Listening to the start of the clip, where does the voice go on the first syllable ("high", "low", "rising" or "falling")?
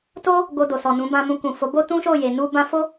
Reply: high